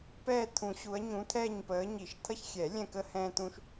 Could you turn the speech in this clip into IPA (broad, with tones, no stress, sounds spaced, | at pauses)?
p ɛː˦˨ t̪ʰ ũ˨˩˦ ɕ u˨˦ ɐ̯ ɲ ũ˨˦ t̪ʰ ɛː˦˨ ɲ p əː˨˦ ɲ i˨˩˦ ʃ t̪ʰ ʌ˦ ç xʲ ɛ˨˩˦ lʲ ɛ̃˦˨ k ə˦ h ɛ̃ː˦ t̪ ũ˦ ʃ